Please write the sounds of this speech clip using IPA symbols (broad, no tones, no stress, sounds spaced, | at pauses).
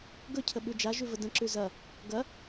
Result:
ɡ ɵ cʰ ə ɓ ʉ d͡ʒ a ʒ ʉ v ə d ə̃ ǁ ʉ z ɐ | ɡ ɐ